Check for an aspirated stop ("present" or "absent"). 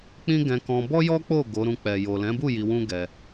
absent